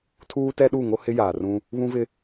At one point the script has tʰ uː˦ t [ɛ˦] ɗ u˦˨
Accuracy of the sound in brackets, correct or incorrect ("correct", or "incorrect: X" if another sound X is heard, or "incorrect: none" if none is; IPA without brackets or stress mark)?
correct